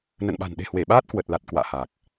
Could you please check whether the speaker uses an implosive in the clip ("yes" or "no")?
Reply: yes